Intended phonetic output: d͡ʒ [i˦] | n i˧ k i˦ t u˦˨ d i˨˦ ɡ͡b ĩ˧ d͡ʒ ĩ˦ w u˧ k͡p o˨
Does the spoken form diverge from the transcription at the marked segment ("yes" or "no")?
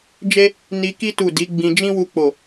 yes